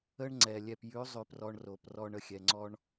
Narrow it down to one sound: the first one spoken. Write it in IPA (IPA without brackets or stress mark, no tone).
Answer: ə